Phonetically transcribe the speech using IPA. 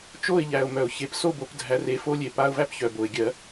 t͡ʃo˥˨ɪ̯ʎæ˨ʊ̯mœ˨˩˦ʊ̯çe˨˦p so˥˨bo˨˩˦p dʱæ˨˦re˨˦ fo˥lʲe˨˦pa˧˥˧ʊ̯ væ˥pçœ˨bo˨ɪ̯ ɡʲɜ˨˩˦

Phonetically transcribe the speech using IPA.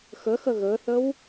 xəxə ɣəːθəw

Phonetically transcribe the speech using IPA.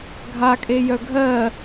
ɡʱakʼejœ ɡʱɜ

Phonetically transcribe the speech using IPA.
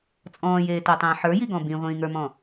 t͡sʼɔ̃ːjeːtetˤĩː ħə˞jiɡɔ̃ bĩʁʷĩːŋə˞mɔ̃

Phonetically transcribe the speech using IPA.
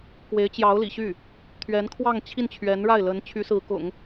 kwe˧˥ɪ̯t͡ɕjɑ˧˥ʊ̯lḭ˨˩ɕy˥˩ | t̪ʰɥɛ˧˥nkʰwɑ˥˧ŋ t͡ɕʰi˥˩nt͡ɕʰɥɛ˧˥nɻa˥˩ɪ̯lə˧˥n t͡ɕʰy˧˥sɹ̩˧˥kʊ̰˨˩˦ŋ

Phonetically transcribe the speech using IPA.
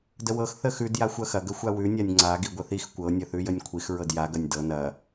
dəwɤx θəxʉd jaxʷɐxɐ ɡəxʷawʉ nʲanʲŋ͡ǀa ɡiɡʷəθix kʷɤ nʲɐθʉjənʲkʷʰix ɹɤdja ɡɐnʲdɤ nɐ

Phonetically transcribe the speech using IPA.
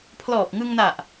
pʰlɔː˨˩p̚ŋɯ˧ŋ na˨˩ʔ

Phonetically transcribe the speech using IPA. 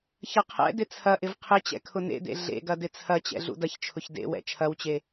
çɐqʰɛ̰dɪ t͡sʰɐʔɪv qʰɪt͡ɕɛ̰ kʰʊnḛdḛ ɮḛɡɐ dɪt͡sʰɐt͡ɕɛ̰ ɮṵdɐçt͡ʃʰʊç dḛ wɛ̰t͡ʃʰɐwt͡ɕe

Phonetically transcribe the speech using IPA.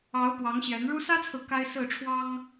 ɑ˨˦ʊ̯pwɑ˨˦ŋɕjɛ˨˦nɻu˦ sä˦t͡sʰɹ̩˨ ka˦ɪ̯sɹ̩˥˨ ʈ͡ʂʰwɑ˦ŋ

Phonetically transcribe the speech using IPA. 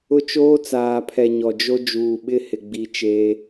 ʊ˦t͡ʃoː˦t͡saː˨pʰɛ˨ ɲɔ˨d͡ʒo˦ d͡ʒuː˨ɓɪ˦hɪ˨ɡ͡bi˨ t͡ʃeː˦

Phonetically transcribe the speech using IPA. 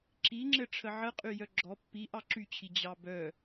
ǁiŋ͡ǁɘ ʈ͡ʂʰəʕəqʼy jœɡ͡ǁɔ pːi ʔɑǁyt͡ɕʰi d͡ʑɑbœ

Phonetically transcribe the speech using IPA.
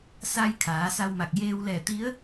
sa˧jkʰaː˩˧ sa˧wma˧˩k̚ jeː˧wlɛː˧˩ t̪i˧˥ə̯

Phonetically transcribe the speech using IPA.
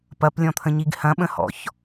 pɐplʲɔ̃t̪ʰə̃ɲiɡ hɐ̃ɓə̃hɔ̰ç

